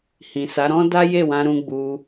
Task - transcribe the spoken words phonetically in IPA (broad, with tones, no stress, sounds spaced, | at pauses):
h ĩ˨ s a˨˦ ɾ ɔ̃˦ d a˦ j e˦˨ w ã˧ ɾ ũ˧ ɡ͡b u˧